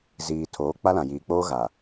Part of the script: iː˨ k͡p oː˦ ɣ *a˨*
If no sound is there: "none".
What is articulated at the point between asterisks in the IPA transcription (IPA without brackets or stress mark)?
a˨